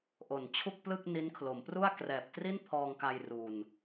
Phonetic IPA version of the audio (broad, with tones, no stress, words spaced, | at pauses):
ʔo˨˩nt͡ɕʰu˥˩k̚plɯ˥˩k̚ ni˦˥nkʰlo˩˦m pru˥˩a̯krɛː˨˩p̚ tri˥˩npʰɔː˧ŋka˧j ru˧n